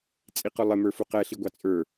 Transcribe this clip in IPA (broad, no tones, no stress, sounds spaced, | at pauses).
t͡sʼ i q ʊ lˠ ɪ m ə˞ f u q ɛ ɬ i ɡʷ ɑ t͡sʼ ə˞